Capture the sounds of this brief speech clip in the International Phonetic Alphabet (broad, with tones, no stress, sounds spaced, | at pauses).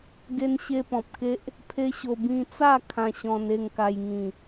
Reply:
ɡ e˦ n ɕ e˦ p ɔ̃˨ p̚ k e˦ ʔ | pʰ e˦ ɕ o˧ b ĩ˧ t͡s a˥˧ kʰ ã˧ ɕ ɔ̃˧ n e˥˧ ŋ k a˧ j ŋ ĩ˨˩